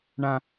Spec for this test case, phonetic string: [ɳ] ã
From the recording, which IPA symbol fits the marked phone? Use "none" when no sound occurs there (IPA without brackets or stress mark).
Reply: ɳ